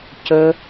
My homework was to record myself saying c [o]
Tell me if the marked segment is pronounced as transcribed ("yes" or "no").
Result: no